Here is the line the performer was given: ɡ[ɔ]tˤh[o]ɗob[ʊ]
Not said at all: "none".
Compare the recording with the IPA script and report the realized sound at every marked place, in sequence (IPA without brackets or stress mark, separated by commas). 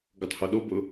ɔ, o, ʊ